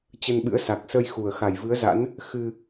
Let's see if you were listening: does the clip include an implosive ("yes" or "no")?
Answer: yes